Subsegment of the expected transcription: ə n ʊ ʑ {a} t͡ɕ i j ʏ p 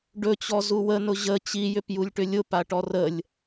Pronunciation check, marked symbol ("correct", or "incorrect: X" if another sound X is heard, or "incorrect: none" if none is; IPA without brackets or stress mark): incorrect: ə